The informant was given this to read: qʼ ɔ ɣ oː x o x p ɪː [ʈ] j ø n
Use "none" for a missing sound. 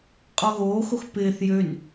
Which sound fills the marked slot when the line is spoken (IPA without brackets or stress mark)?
θ